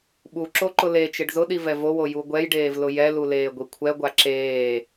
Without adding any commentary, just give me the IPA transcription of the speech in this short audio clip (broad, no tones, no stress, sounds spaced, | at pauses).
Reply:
ɓ u ǁ o ǃ ʊ l e t͡ʃ ɪ ɖ z ʊ ɗ i v ɛ v o w o j u ɡʷ ɛ j ɖ eː v l ʊ j ɛ l u l eː ɡʷ i kʷʰ ɛ ɡʷ a ǁ eː